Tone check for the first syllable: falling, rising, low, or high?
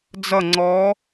falling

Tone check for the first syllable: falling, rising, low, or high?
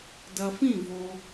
low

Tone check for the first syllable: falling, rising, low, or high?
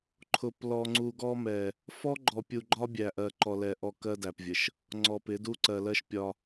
low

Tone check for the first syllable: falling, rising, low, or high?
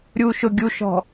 low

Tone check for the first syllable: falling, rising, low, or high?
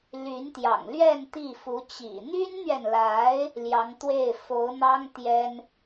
rising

